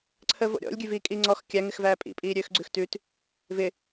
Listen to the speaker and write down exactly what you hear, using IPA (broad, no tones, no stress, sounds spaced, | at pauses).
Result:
ǀʰ əː v o̰ ɾʲ ɔ̰ lʲ ɡʲ ʉ v iː kʼ i ŋ͡ǀ ɔ x kʲ æ ŋ ɪ x v æː pʼ ḭ pʼ iː ɾʲ øː x ɡ͡ǀ ʉ x t ʉː t | v ɪ